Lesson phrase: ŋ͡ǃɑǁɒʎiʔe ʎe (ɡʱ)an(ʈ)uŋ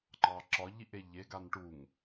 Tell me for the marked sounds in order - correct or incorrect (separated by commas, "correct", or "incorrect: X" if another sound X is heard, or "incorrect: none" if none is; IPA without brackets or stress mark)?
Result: incorrect: ɡ, correct